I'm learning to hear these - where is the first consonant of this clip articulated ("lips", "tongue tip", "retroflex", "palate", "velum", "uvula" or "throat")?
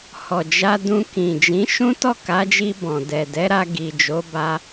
throat